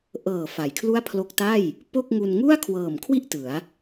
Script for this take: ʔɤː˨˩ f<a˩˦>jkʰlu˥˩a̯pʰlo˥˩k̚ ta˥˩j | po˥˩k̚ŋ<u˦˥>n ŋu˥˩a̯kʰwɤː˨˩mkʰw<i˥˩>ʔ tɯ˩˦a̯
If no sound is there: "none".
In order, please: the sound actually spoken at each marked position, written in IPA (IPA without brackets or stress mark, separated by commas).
a˩˦, u˧, i˥˩